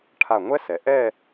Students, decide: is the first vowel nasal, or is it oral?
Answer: oral